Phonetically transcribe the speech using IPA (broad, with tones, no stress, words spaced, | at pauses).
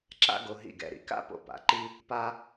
ǁa̰˥ɡo˧ ɦḭ˧˩ɡɛ̰˧˩ɾḭ˩˧ ka̰˥˧po̰˧pa̰˩˧ǃi˥ | pa˥